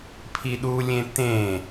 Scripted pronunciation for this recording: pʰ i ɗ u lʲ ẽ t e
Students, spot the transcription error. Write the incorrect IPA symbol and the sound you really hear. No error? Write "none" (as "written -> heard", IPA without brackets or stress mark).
e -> ẽ